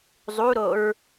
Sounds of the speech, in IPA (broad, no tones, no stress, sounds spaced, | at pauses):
zˤ u ɾ o ɹ